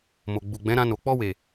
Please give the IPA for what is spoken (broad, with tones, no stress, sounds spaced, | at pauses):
m o˨ ɡ͡b u˨ ɡ͡b ɛ̃˨˦ ɾ ã˧ n o˨ k͡p ɔ˧ w e˨